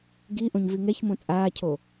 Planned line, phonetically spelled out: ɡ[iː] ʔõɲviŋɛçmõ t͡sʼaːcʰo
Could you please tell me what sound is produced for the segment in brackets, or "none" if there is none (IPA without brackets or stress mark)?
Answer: i